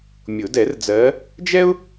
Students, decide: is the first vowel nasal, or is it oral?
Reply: oral